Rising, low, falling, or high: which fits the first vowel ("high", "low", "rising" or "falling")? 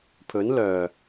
rising